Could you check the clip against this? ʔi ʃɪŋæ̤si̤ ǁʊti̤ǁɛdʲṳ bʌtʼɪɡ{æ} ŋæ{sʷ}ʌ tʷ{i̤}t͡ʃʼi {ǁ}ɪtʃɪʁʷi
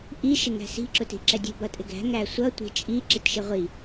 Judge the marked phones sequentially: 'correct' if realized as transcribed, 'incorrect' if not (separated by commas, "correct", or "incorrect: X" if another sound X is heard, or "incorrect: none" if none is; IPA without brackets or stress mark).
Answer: incorrect: æ̤, correct, correct, correct